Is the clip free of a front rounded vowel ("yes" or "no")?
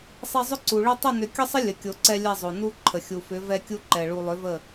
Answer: no